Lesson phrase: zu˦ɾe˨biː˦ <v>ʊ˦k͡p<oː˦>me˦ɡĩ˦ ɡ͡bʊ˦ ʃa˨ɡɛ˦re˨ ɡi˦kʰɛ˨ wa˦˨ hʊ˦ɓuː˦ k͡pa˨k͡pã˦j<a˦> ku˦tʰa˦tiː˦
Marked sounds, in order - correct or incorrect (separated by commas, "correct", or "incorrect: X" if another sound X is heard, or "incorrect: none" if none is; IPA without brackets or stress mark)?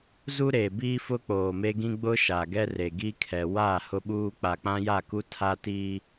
incorrect: f, incorrect: oː˨, incorrect: a˦˨